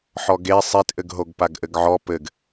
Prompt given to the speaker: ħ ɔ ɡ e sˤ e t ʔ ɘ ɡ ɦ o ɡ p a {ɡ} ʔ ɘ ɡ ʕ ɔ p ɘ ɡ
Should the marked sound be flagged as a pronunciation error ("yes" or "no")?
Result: no